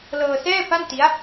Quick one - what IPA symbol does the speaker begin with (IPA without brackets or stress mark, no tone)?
l